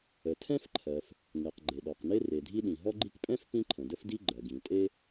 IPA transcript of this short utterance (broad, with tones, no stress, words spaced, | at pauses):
ə˩tʰɛ̃˥fǃʰɜ˩f | ŋe˩q ɡ͡ǃe˩ɗɔ˩qne˥ re˩dʱi˥ɗĩ˩ ɦɔ˥ɡ͡ǃi˥k pʼɛ̃˥f pĩ˥ǃʰə̃˩də˥fdi˥ ɡ͡ǃɜ˩ɡĩ˩tʼe˥